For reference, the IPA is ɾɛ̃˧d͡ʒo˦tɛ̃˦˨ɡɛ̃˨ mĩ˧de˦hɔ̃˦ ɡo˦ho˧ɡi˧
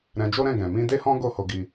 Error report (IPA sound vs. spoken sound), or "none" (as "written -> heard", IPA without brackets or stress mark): t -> ɾ